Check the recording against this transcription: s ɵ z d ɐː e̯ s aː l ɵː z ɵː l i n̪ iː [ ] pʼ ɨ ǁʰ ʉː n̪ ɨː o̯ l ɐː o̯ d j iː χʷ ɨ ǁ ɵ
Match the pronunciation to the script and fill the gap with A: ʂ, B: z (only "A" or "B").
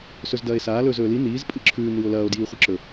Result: B